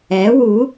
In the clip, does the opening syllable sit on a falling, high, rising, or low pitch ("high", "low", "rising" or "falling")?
rising